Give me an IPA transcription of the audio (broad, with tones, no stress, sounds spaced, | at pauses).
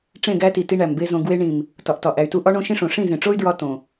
ʈ͡ʂ ẽ˦˨ ɡ æ˦ t i˨ t i˦ ɳ æ˨ m b e˦ z õ˧ ɡ w e˧ ɳ ĩ˨ m | t ɒ˨ ʔ t ɒ˨ ʔ æ˨ y̯ t u˦ ʔ ɒ˦ ɳ õ˦ ʃ ĩ˦ ʂ õ˨ ʂ ĩ˦˨ z ẽ˨ ʈ͡ʂ o˦ y̯ d ɹ ɒ˧ t õ˨